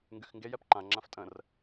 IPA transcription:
ŋ ɡ y x ŋ ɡ e j ɛ p ǃ ã ŋ͡ǁ ã f tʼ ə̃ r

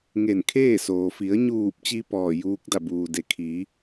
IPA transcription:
ŋ e˧˩ n kʰ eː˥˨ s oː˩ f i˩˧ ə̯ ɲ uː˧˩ p̚ t͡ɕ i˧ p ɔː˧˩ j uː˧˥ k̚ d a˧˩ b uː˩ d e˩ kʰ iː˩˧

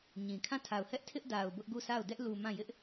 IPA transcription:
ɲ ĩ˨ kʰ ã˦˨ tʰ a˨ ʊ̯ h ɛ˦ ʔ tʰ ɪ˦ ʔ d a˨ ʊ̯ b ʊ˦ ʔ ɡ u˦˨ sʰ a˦˨ ʊ̯ d ɛ˦ ʔ l u˨ m ã˦˨ j ɪ˦ ʔ

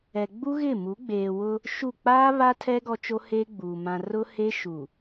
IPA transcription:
ɛ˨ ɡ͡b u˦ ɣ ɪ˦˨ m u˨˦ ɡ͡b eː˨ w ʊ˦ | ʃ u˦˨ k͡p aː˦ β a˦ tʰ ɛ˦ ɡ ɔ˦ t͡ʃ o˦ h eː˦ ɡ͡b uː˨ m ã˨ r ʊ˦ h e˦ ʃ u˨

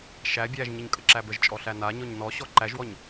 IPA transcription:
ʃ æ bʲ æ ʒ ɲ ə ɲ kʼ ə ǁ æ b ə ʒ t͡ʃʼ ɔ ɬ æ n a ɲ ɔ ɲ n ɔ ɕ ɔ ǃ æ ʒ w ɔ ɲ

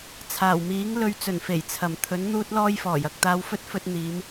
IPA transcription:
t͡sʰ aː˨˩ w m iː˨˥ ŋ l ɵ˧ ɥ t͡s ɵ˨˩ n f e˨˩ j t͡sʰ ɐ˨˩ m t̪ʰ ɵ˨˥ n n̪ uː˥ t̚ l ɔː˥ j f ɔː˨˩ j ɐ˨ k̚ t̪ aː˧ w f ɵ˥ t̚ f ɵ˥ t̚ n̪ iː˨˧ m

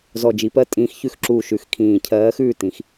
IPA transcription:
z ɔ˨˩ d͡ʒ i˩˧ p ɜ˧˥ tʼ ĩː˩˧ x ç ʉ˦˨ x ǁ uː˨˩ ʃ ʉ˩˧ x kʰ ĩː˨˩ cʰ ɜː˧˥ x ʉː˦˨ t ĩ˩˧ x

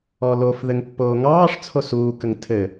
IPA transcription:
ɔ l o f ð ɘ ŋ pː oː ŋ ɑː ʂ t͡sʰ o s uː k ə ŋ tʰ ɘ

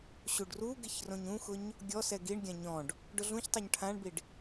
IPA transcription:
ɕ u ɖ r u ɡ ɪ ç r õ ɲ ũ x ʊ ɲ | ɡʲ ɔ s ɛ ɡ i ɳ ɡʲ ã ɲ ɔ̃ ɖ | ɖ ʊ ɮ ũ ç tˤ o ɲ ʈʰ ã ɳ b i ɖ

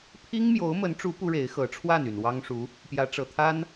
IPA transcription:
pʰ i˥ ŋ m j o˧˥ ʊ̯ m ə˧˥ n ʈ͡ʂ u˧˥ p u˥ ɻ e˧˥ ɪ̯ x ɤ˧˥ ʈ͡ʂʰ w a˥˩ n y˨˩ n w ɑ˥ ŋ ʂ u˧˥ | p j ä˧˥ ʈ͡ʂ ɤ˨˩ t̪ʰ a˥ n

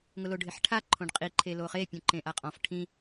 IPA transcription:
ŋ ʊ l o ɖʱ ɪ ħ ʈʰ a ǃʰ õ ɖ qʼ i ǃʰ e l o χ e pʲ ũ ǃ ẽ ʔ a qʼ ɔ̃ f ʈʰ ĩ

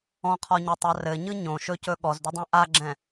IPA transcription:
ɔ̃ qʰ ɔ ɲ ɵ tˤ a r ɘ ɲ ɯ ɲ õ ʃ ɵ c ɵ ɠ ɔ z d ʏ dˤ ɛ̃ ʔ a ɡ͡ǁ ɛ̃

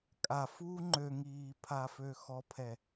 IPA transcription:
kʼ a f uː ŋ͡ǃ ø ŋ iː pʰ a f ø x ɔ pʰ ɛ

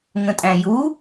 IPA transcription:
ŋ ə̃ tʼ æ̃ j u

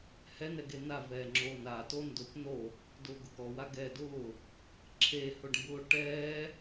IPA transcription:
h ɛ n ɛ ɡ e n a v ɛː ŋ͡ǁ oː n a t o n d ʊ p n o | d ʊː ɡ ʊ k ɔ w a ɡ ɛː d ʊː | ǁʰ e h ʊ ɖ m b ʊː ʈ ɛː

